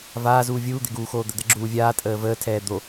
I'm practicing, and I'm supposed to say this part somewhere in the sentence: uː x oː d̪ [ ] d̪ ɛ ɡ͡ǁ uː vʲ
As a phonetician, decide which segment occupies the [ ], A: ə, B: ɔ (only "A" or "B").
A